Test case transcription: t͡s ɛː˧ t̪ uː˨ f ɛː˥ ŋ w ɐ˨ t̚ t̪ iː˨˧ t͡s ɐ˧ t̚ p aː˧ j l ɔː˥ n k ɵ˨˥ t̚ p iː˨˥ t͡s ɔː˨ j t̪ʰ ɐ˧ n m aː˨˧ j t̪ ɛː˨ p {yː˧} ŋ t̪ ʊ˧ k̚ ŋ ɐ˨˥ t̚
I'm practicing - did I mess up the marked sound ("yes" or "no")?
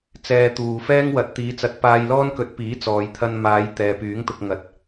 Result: yes